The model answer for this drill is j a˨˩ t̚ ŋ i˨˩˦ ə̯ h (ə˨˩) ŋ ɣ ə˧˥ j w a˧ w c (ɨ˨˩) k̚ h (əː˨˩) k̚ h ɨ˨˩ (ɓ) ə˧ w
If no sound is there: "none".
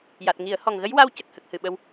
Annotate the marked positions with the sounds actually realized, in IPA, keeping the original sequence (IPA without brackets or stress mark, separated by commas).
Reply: ɔ˨˩, ə˨˩, ə˨˩, ɓ